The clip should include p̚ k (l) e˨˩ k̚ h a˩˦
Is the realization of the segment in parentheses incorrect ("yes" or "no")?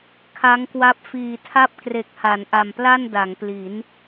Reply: yes